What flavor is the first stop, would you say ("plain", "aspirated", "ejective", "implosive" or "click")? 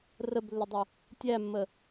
plain